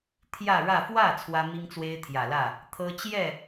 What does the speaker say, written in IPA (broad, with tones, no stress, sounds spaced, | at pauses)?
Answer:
t̪ʰ j ä˥˧ ɻ ä˥˧ f w ä˥˩ t͡sʰ w ä˥ m i˥ ŋ t͡s w e˥ ɪ̯ t̪ʰ j ä˨˩ l ä˥˩ | t̪ʰ ɤ˥ t͡ɕ j ɛ˥˩